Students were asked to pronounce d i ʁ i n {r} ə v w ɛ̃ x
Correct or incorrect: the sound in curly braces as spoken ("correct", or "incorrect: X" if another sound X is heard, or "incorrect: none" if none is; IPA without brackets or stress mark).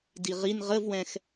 incorrect: ʁ